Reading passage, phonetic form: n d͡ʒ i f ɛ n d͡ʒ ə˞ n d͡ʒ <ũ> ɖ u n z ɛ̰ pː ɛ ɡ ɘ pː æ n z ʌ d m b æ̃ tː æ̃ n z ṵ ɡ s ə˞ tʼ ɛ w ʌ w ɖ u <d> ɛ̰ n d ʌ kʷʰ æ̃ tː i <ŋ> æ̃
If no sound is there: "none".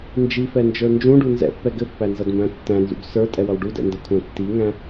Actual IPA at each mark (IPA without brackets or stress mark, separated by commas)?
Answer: ũ, d, ŋ